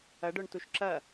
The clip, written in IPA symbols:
ɐ ɖ œ ɳ t u ʃ ǁ ɐ

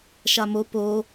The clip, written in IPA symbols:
ʃ a m o p o

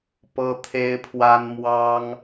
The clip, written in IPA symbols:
p ɤ˦ t̪ʰ e˦ ɪ̯ pʰ w a˦ n m w ɑ˦ ŋ

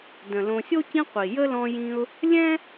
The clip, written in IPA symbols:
d ə̃˩ l õ˨ sʲ o˥ c ĩ˦ qʷ i˩ j ə˥ l ɔ̃˦ j ĩ˦ ʊ̯ | lʲ ɛ̃˥

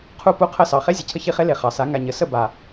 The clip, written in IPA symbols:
qʰ u˦˨ p u˦ qʰ ə˦˨ s ɑ˨ χ e˦ zʲ ə˨ cʰ ə˦ ç i˧ χ e˦ l e˨ χ ɑ˨ s a˨˦ ŋ a˨ ɲ ə˨ s ə˦˨ b a˨

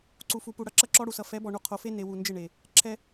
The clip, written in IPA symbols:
ǀ u˨ f u˨ p u˨ ɽ ʌ˦˨ ǁ ʌ˦ ǁ ɔ˦ ɽ u˨ s ʌ˨ f ɛ˨˦ b ɔ˨ ɳ u˨ qʰ o˨ f e˦ n e˨ w u˨ n d͡ʒ ɪ˦˨ ɳ e˨ | ǁʰ ɛ˦

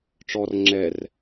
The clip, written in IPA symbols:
ʈ͡ʂ ɔ r ŋ͡ǁ ɛ r

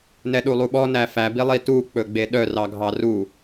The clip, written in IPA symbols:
n ɛ ɗ u lˠ u ɓ ɔ n æ f æ b i lˠ i t u k͡p ɵ ɡ͡b e ɗ œ r ɑ ɡʱ ɑ r u

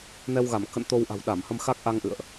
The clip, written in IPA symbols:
n ɛ˧ w ɣ a˧˩ m k ə̰˧˨ n t̪ o˧ w ʔ a̤˨˩ w ɗ a˧˩ m h ə˧ m x a˦˥ k̚ ʔ a˧ ŋ ʔ ɨ̰˧˨ ə̯ ʔ

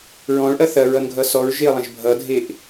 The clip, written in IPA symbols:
ɹ ɔ̃ ɭ ʔ ɐ θ ɐ ɹ ʌ n ɡʱ ʌ s ɔ ɹ ʒ e ə̯ lˠ ɐ̃ ʒ bʱ ʌ dʱ e ʔ

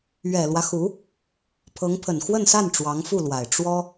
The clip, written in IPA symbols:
ɥ ɛ˨˩ l w ä˦ x u˧˥ | pʰ ɤ˧˥ ŋ pʰ ə˨˩ n x w ə˥˧ n s a˥˩ n ʈ͡ʂ w ɑ˧˥ ŋ f u˥˩ l w a˨˩ ɪ̯ ʈ͡ʂ w ɔ˥

